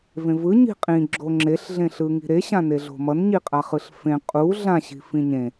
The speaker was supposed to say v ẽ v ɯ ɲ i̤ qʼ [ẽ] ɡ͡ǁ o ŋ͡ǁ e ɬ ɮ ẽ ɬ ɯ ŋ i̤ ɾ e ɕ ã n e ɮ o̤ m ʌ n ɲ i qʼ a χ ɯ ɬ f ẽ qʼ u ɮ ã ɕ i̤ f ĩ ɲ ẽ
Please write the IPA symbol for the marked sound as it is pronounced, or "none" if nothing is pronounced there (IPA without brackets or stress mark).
ĩ